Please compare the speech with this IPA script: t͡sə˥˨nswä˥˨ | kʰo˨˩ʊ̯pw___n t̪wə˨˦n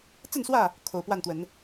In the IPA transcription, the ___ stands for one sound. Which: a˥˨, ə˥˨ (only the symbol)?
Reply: a˥˨